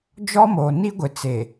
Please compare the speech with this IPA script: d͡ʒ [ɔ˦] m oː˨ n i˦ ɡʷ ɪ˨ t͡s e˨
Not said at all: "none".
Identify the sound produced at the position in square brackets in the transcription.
ɔ˦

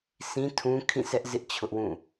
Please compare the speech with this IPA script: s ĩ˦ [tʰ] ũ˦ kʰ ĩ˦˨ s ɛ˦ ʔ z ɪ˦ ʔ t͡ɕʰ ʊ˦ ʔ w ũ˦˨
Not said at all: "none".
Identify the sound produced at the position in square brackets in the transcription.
tʰ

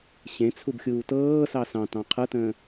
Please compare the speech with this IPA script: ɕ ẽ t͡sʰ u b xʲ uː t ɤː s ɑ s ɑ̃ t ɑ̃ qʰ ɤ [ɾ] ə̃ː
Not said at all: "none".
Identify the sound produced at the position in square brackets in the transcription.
t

